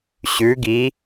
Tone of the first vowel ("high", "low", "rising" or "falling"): rising